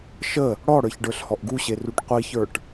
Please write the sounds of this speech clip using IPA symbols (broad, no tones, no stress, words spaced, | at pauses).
ʃə | ɽɔɽə˞çɖə˞ɬ hɔʔɡuɕe ruʈqʷiçə˞ʈ